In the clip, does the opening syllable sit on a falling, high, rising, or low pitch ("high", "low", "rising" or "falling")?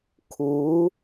rising